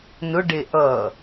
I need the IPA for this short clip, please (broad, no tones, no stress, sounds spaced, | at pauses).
n ʊ ɖ e ʔ ʌ